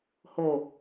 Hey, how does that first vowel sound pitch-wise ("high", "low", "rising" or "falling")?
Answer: low